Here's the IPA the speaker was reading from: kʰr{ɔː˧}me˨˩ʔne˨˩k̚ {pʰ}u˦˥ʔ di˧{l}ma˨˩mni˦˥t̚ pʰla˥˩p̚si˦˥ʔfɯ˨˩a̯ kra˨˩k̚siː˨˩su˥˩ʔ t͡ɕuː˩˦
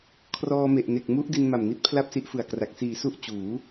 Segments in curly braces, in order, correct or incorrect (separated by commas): correct, incorrect, incorrect